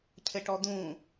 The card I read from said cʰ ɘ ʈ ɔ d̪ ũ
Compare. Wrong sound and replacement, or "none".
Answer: none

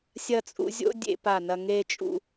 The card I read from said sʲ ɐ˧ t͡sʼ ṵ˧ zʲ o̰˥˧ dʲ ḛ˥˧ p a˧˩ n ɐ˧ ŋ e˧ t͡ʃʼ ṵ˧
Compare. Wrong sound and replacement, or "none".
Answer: none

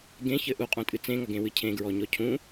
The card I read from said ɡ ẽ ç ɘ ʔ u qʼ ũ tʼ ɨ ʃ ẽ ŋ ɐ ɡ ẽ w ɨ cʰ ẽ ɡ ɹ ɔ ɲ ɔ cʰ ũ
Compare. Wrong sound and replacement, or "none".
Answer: ʃ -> t͡s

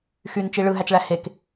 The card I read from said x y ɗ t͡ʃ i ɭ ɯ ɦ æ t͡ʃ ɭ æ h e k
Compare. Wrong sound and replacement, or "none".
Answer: ɗ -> n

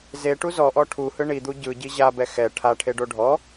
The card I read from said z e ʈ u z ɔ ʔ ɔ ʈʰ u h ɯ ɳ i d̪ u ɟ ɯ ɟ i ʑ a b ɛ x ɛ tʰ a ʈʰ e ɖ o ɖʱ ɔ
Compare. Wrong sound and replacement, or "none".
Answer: tʰ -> ʈʰ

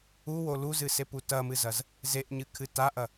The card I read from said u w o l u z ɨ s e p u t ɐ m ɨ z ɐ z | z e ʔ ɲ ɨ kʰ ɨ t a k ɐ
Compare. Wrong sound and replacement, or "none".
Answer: k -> ʔ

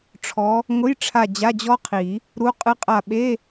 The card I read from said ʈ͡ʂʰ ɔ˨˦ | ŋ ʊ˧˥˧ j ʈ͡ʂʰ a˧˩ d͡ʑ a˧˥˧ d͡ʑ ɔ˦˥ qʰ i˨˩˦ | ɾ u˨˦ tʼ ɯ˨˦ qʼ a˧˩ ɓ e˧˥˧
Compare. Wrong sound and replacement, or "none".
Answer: tʼ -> qʼ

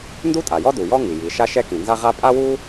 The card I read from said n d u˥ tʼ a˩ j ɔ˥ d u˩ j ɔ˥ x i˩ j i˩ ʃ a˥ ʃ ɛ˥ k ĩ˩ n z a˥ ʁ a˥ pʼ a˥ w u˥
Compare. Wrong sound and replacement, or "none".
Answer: x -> ŋ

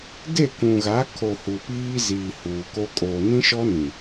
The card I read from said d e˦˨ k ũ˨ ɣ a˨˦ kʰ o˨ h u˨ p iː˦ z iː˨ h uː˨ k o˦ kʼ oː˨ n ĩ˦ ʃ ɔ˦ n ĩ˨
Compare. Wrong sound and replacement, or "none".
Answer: none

